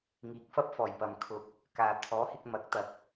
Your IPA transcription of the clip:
ŋ iː˨˥ k̚ f ɐ˥ p̚ f ɔː˨˩ j p ɐ˨ m kʰ ʊ˧ k̚ | k aː˨ t̪ʰ ɔː˨˥ h ɪ˧ k̚ m ɐ˨˥ k̚ t̪ ɐ˨ k̚

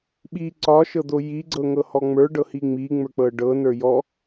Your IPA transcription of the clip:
ɓ i ǀ ɒ ʃ ɤ d̪ o j i ɡ͡ǀ ɤ ŋ ɤ h ɔ ŋ͡m ə˞ ɖ ɤ h i ŋ͡m i ŋ͡m ə˞ k͡p ɤ ɖ ɤ n ə˞ j ɔ

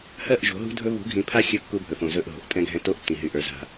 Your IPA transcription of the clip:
h ɜ˦˨ ʔ ʒ o̤˨˦ ɦ ṳ˦ dʱ ɵ˦ β ṳ˨˦ ɡʱ ĩ˨ pʰ a˦ xʲ ɵ˦˨ kː u˦ bʱ ɵ˨ f õ˨ z ɵ˦˨ ʔ ɦ o̤˨ ʔ tʼ ɛ̃˦ ɡʱ ɛ̃˦ t o˦ ʔ tː ĩ˨ ɦ y˨ ʔ ə˞˨ z a̤˦

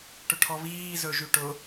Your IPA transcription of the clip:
ʈ ɵ ʈʰ ɔ β iː z ɵ ʒ y ʈ ʊ

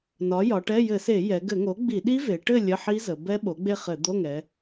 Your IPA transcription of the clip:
n ɒ˩˥ j ɒ˩˧ ʈ ɛ˧˥˧ j ɘ˧˩˧ s e˧˩˧ j ɛ˩˧ ɡ ɘ˧˩˧ ŋ o˩˥ ɡ͡b i˧˩˧ ɗ i˦˥ v e˩˧ ʈ ɘ˥˨ lʲ ə˧˥˧ ħ i˦˥ z ə˩˧ b ɛ˦˥ ɓ o˩˥ ɡ͡b e˥˨ χ ɘ˧˩˧ d̪ o˧˥˧ ŋ ɛ˩˧

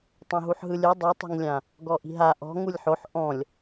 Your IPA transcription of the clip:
tˤ õ ɦ u ħ ɦ ɯ lʲ ɯ dˤ ɯ tˤ i̤ ŋ lʲ ã | ɡ ɔ ʔ i̤ ɦ a ʔ ɔ̤ ŋ u lʲ ħ o ħ ʔ ɔ̃ lʲ

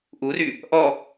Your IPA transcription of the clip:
ʔ u r y | ʔ ɔ

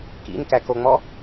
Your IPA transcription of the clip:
k ḭ n k æ k o ŋ͡m ɔ

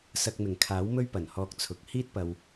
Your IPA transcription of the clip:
s ɐ˧ k̚ m ɪ˨˩ ŋ kʰ aː˨˥ w m ɵ˥ ɥ p ɐ˨˩ n h ɔː˧ k̚ t͡sʰ ʊ˨˥ k̚ h iː˥ t̚ p ɐ˨ w

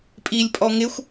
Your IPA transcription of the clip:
pʼ i lʲ pʼ ɔ ŋ ɪ xʷ

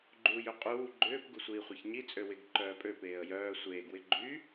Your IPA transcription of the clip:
ɡ͡ǃ uː j ø qʼ uː ɡ͡ǃ ʏː p ɡ u sʷ iː χʷ e ç ɲ i t͡sʼ ø w ɪ ɡ ǃ œː pʼ ø p eː ə̯ j œː sʷ eː ɡ w ɪ ɡ͡ǃ y

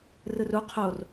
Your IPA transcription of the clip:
r ɯ r u qʰ o r

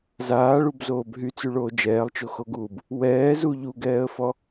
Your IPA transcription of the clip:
z aː ɭ u b z oː b ɦ y t͡s y ɭ oː d͡ʒ ɛː lˠ t͡ʃ o x o ɡ uː b | w ɛː z u ʎ u ɡ ɛː ə̯ f ɔ

